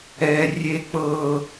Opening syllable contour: low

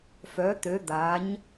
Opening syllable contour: rising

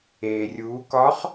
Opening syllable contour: low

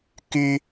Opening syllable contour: high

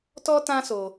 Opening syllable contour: high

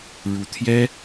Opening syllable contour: rising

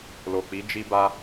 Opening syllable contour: low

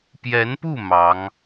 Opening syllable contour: rising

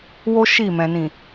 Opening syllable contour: high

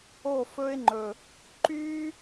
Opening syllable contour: falling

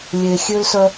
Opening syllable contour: low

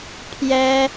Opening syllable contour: high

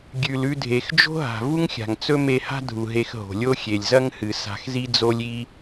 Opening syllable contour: low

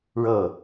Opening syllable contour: falling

